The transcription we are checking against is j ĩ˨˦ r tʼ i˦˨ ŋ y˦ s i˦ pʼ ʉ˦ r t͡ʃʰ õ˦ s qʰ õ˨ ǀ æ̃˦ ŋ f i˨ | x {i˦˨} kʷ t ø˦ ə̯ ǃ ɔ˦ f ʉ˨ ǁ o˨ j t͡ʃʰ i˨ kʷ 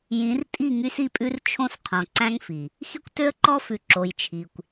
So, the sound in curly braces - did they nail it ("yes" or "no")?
no